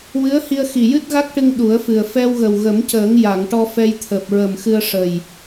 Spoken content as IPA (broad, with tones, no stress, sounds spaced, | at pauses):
w ɨ˧˥ ə̯ h i˧ ə̯ x i˨˩ j ɨ˦˥ t̚ ɣ a˦˥ k̚ ʈ ɨ˧ ŋ ɗ u˨˩˦ ə̯ f ɨ˨˩ ə̯ f ɛ˧ w ɣ ə˨˩ w ɣ ə˨˩˦ m c əː˨˩˦ ŋ j a˨˩˨ ŋ ʈ ɔ˧ f ɛ˧ j t̪ʰ əː˨˩ p̚ ɹ ə˨˩ m x ɨ˧ ə̯ ʂ ə˨˩ j